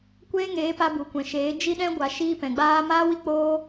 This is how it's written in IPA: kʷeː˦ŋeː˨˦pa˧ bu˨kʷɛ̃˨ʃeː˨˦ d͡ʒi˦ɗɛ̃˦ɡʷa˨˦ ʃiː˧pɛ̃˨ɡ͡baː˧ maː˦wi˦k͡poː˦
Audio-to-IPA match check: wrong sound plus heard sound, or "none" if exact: none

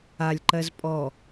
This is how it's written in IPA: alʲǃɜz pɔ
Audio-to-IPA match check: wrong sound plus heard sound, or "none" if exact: p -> pʼ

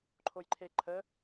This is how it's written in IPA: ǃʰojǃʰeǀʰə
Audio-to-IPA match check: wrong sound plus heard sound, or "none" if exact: ǀʰ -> ǃʰ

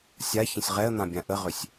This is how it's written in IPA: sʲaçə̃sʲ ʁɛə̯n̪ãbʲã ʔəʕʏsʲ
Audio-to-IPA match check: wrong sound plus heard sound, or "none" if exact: ʕ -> ʁ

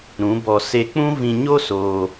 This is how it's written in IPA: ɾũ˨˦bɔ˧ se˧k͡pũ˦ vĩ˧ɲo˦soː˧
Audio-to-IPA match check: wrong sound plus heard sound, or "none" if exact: none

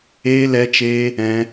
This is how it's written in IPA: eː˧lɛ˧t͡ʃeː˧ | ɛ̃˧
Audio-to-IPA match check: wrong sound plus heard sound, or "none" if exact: none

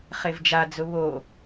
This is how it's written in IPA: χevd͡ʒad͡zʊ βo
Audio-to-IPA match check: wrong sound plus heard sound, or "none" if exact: none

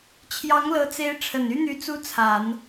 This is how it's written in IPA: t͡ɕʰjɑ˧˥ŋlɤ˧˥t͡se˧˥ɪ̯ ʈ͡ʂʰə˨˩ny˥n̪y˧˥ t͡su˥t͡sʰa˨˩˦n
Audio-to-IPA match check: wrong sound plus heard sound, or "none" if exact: none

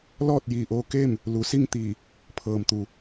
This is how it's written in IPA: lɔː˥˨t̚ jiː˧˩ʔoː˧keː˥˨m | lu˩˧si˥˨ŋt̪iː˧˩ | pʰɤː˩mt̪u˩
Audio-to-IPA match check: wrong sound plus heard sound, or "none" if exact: none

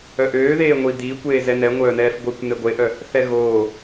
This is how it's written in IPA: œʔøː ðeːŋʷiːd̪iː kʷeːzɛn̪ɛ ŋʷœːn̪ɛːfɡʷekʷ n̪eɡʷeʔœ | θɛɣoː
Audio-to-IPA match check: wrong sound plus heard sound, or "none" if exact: none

